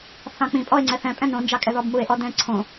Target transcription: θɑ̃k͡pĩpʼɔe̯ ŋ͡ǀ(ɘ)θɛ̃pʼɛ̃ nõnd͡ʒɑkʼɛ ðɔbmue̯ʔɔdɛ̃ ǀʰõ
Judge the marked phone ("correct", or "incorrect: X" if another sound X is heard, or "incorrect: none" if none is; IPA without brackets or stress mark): incorrect: ɛ